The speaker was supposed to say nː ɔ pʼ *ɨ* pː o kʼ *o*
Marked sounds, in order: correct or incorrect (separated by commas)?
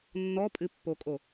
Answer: correct, correct